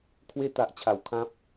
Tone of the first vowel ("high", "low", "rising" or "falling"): high